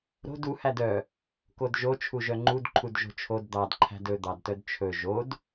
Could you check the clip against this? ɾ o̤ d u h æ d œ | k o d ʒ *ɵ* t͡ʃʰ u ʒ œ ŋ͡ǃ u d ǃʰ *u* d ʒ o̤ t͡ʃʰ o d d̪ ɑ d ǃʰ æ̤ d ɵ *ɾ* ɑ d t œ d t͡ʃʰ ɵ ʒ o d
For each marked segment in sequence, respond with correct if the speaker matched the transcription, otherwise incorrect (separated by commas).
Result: incorrect, correct, incorrect